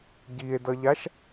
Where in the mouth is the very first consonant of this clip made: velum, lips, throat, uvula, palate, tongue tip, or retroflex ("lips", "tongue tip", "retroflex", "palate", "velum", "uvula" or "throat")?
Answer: palate